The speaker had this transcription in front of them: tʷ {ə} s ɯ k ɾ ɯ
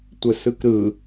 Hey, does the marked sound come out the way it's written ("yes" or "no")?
yes